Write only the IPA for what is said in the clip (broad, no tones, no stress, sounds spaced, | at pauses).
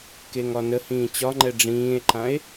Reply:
k e ŋ ɒ n ə h ĩː t͡ɕ ɒ ŋ͡ǃ ɛ ɖ͡ʐ ĩː e̯ ǃ ã e̯